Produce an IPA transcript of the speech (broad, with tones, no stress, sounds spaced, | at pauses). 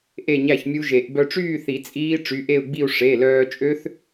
ʔ e˥˧ ɲ æ˥˧ ç mʲ u˦˥ ʒ e˨˩˦ ʔ b œ˧ ʈ͡ʂ yː˥˧ θ i˨˩˦ t͡sʼ iː˦˥ ʈ͡ʂ y˩˧˩ ʔ e˥˧ u̯ ɡ͡b i˥˧ u̯ ʂ e˩˧˩ l œː˧ t͡ʃʼ ø˦˥ θ